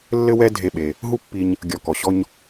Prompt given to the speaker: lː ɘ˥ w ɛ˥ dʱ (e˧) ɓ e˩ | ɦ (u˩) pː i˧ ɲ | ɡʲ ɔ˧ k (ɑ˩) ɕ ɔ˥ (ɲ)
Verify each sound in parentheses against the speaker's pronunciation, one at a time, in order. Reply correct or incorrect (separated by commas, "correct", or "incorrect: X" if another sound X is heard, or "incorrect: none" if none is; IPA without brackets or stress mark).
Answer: correct, incorrect: u˥, incorrect: ɔ˩, correct